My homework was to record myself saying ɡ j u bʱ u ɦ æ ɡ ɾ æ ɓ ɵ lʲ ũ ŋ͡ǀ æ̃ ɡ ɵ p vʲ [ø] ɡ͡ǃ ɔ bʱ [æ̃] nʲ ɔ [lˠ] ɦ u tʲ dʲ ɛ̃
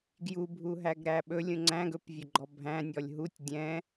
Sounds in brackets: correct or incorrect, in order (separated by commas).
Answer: incorrect, correct, incorrect